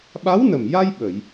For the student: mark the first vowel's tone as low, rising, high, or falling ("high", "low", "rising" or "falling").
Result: rising